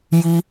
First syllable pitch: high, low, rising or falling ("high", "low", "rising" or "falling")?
high